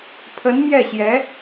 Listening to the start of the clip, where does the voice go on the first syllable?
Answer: rising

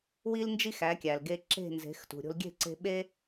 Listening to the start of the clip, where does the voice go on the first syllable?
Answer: high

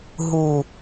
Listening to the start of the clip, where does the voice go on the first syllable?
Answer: low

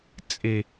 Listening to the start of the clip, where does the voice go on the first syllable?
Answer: low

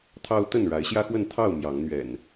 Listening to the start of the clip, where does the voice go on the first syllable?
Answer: high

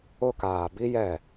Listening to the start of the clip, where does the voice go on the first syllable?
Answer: high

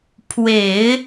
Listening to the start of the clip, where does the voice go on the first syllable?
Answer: low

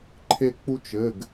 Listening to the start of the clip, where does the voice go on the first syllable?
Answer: high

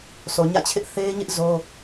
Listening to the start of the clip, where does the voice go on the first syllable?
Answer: low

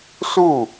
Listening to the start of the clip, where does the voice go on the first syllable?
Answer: falling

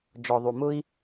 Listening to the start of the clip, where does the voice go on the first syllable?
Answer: low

